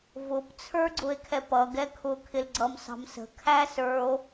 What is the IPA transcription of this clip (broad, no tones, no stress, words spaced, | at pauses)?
vʊp t͡sʰə˞ɡ͡ǀʊe̯kʰɛpʌ ɡɛkʰʊ kʰɪlɡ͡ǀʌmsɑ̤msə̤ kʰæsə˞o̯